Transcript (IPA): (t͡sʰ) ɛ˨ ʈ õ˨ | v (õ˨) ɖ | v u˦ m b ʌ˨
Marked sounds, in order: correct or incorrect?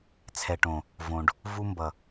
correct, correct

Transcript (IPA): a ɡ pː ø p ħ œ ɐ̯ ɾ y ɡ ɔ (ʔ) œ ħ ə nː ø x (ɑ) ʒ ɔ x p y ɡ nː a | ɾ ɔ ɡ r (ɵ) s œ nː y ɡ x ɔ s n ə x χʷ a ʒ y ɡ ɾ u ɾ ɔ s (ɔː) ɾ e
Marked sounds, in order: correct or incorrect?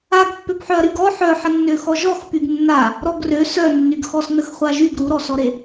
incorrect: ħ, incorrect: ɔ, incorrect: ø, incorrect: ɔ

